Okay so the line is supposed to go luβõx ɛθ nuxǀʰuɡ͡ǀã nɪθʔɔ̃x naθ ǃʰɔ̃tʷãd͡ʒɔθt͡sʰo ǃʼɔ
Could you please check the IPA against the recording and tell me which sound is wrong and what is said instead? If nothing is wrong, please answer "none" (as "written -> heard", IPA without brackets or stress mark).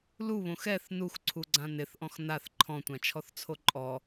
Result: d͡ʒ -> t͡ʃʰ